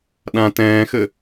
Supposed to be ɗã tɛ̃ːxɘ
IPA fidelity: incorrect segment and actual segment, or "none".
none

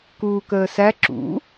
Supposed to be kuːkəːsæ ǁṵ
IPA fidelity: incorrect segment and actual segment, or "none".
none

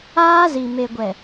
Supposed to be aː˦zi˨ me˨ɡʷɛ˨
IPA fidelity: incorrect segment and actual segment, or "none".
none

